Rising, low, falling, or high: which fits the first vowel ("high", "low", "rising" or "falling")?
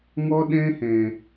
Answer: high